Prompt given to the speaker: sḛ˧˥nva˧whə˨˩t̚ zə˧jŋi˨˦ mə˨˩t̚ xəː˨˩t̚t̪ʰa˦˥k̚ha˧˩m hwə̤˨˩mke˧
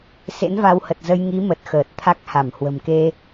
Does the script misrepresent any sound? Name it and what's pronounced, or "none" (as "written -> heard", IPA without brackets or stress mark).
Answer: none